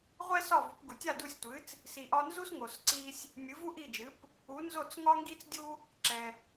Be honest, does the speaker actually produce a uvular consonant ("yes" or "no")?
yes